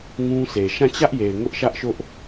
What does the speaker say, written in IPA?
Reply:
ŋ ũ˦ s e˨ ʃ ã˦˨ t͡ɕ ä˦ ʔ j e˨ ɪ̯ ŋ ʊ˦ ʔ ʃ ä˦ ʔ ʃ ʊ˦ ʔ

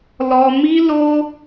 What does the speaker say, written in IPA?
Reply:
l ɔ˧ m i˦ l o˦

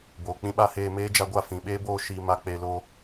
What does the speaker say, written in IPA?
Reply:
b oː˨ k͡p ĩ˦ ɓ a˦ h eː˧ m eː˦ d͡ʒ a˧ ɡʷ a˦˨ f ĩ˨ ɓ eː˦ b oː˧ ʃ iː˨ m a˨ k͡p e˨ l o˦

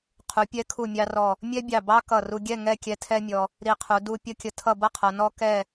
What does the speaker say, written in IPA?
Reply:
qʰ u˩˧ pʲ ɛ˧ kʰ u˧˩ mʲ ɑ˧ r ɔ˧˩ | mʲ ɛ˥ bʲ ɑ˧˩ b ɑ˥ k ʌ˧˩ r u˧ ɡʲ ɛ˥˧ ŋ ɛ˥˧ kʲ ɛ˧ tʰ ɛ˥ mʲ ɔ˧ | ɾ i˧˩ qʰ u˩˧ d u˥ pʲ ʌ˥ kʲ ə˧ tʰ ʌ˥˧ b ʌ˥ qʰ ʌ˩˧ n ɔ˥ k ɛ˥˧

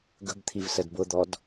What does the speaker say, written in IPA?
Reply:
ɡ ə̤ b t̪ʰ i v s ə d b ʊ d̪ ɔ d

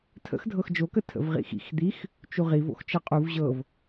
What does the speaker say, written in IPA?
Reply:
tʰ ə̰ x dʱ ɤ x d͡ʒ o k ə tʰ ə̰ v ʁ ḭ x ḭ x d̪ i x | t͡ʃ u ʁ i v o̰ x t͡ʃ ɤ qʼ u v ʑ ɤ v

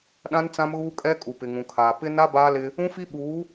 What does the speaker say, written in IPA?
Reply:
ɗ ã˦ n t͡s ã˦ m ɣ uː˦ kʼ ɛ˦ kʼ u˨ p ɪ˨ ŋ ũ˨ kʰ aː˨ p ɪ˦ n a˦ b aː˦ l ɪ˦ | ũ˦ f i˦ ɓ uː˨˦

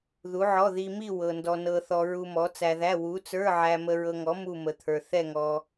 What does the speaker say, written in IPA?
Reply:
ð u˨˥ ʕ ɔ˧˥˧ ð i˧ m i˥˧ w ɤ˧ n d ɔ˧ n ɤ˧ θ ɔ˧ ɹ u˧ m ɔ˨˥ t͡s æ˧ ð æ˧˥˧ w u˨˥ t͡s ə˞˧˥˧ ʕ æ˧ m ə˧ ɹ ɤ˧ ŋ ɔ˨˥ m u˥˧ m ə˨˥ t̪ʰ ə˞˧ θ ɛ˥˧ ŋ ɔ˧

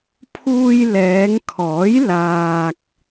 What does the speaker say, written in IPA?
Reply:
pʰ uː˧ j l ɛː˨˧ ŋ kʰ ɔː˨˥ j l aː˧ k̚

